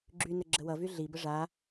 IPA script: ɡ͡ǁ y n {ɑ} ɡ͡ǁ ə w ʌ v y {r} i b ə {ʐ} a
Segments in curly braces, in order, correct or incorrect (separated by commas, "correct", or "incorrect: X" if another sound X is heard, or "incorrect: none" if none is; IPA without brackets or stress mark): incorrect: ə, incorrect: ɮ, correct